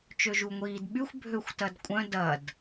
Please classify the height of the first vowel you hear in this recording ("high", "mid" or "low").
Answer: mid